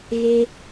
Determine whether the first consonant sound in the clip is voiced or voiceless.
voiced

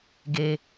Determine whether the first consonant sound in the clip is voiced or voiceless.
voiced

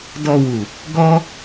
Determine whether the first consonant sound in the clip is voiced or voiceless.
voiced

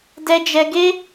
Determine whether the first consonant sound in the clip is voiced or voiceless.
voiced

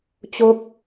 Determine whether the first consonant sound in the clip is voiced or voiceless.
voiceless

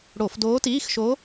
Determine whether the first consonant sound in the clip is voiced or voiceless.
voiced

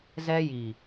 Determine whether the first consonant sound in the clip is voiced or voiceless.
voiced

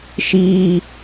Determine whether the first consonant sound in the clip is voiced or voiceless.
voiceless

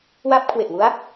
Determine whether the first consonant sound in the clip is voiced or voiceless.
voiced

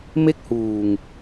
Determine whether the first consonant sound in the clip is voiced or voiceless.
voiced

